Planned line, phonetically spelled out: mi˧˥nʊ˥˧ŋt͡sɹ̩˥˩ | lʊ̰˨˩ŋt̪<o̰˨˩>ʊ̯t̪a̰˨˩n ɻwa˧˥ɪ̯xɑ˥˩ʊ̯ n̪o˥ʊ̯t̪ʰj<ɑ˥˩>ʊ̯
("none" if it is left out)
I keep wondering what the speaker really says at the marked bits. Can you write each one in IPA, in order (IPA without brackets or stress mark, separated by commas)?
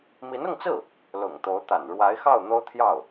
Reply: o˧˥, ɑ˥˩